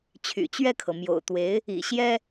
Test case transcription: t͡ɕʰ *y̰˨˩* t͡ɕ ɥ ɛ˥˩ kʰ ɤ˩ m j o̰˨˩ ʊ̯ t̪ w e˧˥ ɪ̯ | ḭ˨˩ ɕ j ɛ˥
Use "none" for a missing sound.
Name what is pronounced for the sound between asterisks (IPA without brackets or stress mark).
y̰˨˩